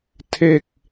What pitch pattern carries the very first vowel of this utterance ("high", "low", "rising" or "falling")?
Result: falling